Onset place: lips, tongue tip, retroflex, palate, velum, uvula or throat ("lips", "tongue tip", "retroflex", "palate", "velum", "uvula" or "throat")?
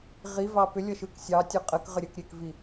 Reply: uvula